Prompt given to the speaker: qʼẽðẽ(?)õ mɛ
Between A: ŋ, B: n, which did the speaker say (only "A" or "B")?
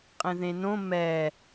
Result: B